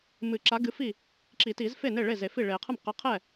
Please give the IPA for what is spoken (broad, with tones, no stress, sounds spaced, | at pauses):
m ɨ˨˩˦ ǁ a˨˥ ɡ ɨ˨˥ f i˥˩ | ǁ i˨˩˦ t i˨˩˦ z f e˥˩ n e˥˩ ɭ e˥˩ z e˨˩˦ f i˥˩ ɭ e˨˩˦ qʰ ɨ˥˩ m q a˨˥ qʰ ɛ˥˩